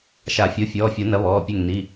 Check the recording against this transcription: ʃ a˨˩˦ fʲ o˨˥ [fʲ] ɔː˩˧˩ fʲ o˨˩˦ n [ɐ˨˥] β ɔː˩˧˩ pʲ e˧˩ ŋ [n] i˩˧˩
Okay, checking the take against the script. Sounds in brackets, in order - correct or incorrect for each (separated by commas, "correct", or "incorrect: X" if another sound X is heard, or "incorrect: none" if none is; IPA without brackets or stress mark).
correct, correct, correct